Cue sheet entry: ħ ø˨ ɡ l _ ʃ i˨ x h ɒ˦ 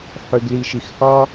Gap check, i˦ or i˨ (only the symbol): i˨